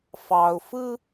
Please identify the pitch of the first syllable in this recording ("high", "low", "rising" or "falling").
low